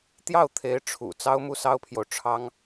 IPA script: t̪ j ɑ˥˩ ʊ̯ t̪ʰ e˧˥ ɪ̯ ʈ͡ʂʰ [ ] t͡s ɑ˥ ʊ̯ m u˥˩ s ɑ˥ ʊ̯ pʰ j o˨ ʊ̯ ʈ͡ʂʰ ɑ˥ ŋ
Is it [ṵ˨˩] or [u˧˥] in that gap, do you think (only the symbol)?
ṵ˨˩